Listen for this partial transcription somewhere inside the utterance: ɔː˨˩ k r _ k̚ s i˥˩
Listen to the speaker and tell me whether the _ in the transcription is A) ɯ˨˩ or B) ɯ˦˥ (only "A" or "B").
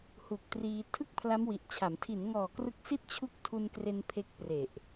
B